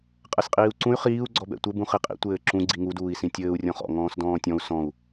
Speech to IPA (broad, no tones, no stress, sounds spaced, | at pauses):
qʼ ɛ s qʼ iː u̯ ǀ ũ y̯ χ iː u̯ ɡ͡ǀ ɔ b ɛ̰ tʷ ɘ b ũ χ i qʼ ḭ tʷ ɘː ǁ ũ ɡ͡ǀ i ŋ u d uː i̯ s ĩ tʲ ɘː u̯ rʲ ɔ̃ χ ɔ̰ ŋ ɔ̃ː s d ɔ̃ː tʲ ɔ̃ u̯ s ɔ̃ u̯